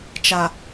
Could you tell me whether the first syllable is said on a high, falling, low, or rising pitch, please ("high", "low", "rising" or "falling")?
low